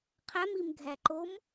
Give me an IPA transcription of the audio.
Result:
qʰ æ m i m ɡʱ æ ǃ o m

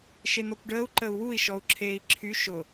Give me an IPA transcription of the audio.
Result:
ʃ e n̪ ɔ kʷ ɖ əː u̯ ǃ ə u̯ w u i̯ ʃ ɔ u̯ ǁʰ eː i̯ ǁʰ y ʃ ʊ

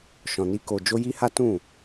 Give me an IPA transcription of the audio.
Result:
ʃ ɔ̃˨ n i˧ k o˨ d͡ʒ o˧ j i˦ h a˦ t ũ˦˨

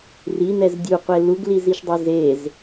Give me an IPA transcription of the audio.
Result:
r i n ɛ z dʲ u qʷ e l u ɡ l i z i ʃ dˤ e z e z

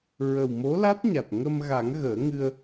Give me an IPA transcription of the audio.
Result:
ɹ ə˨˩ w m o˧˥ l a˦˥ t̚ ɲ a˨˩ t̚ ŋ ə˧ m ɣ a˨˩˦ ŋ ɣ əː˨˩˦ ŋ ɨ˧ ə̯

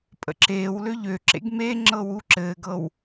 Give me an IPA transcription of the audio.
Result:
pʼ ə̰ ǁ eː w l ø ʎ ø ǁ ḛ ɡ m e ŋ͡ǁ ɤ w u ǁ ɘː ɡ ɤ w

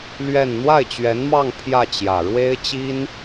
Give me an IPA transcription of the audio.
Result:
l ɥ ɛ˥˧ n n̪ w a˥˩ ɪ̯ t͡ɕ ɥ ɛ˧˥ n m ɑ˥˧ ŋ pʰ j ä˥˩ t͡ɕ j ä˨˩ ɻ w e˥ ɪ̯ t͡ɕ i˥ n

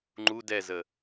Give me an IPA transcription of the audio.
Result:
ŋ͡ǃ u d ɛ z ə

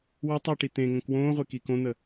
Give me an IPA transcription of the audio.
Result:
w ə tˤ i ʈ i t̪ ẽ ŋ ə̃ k w õː ʁʷ e k i k õ n̪ ə

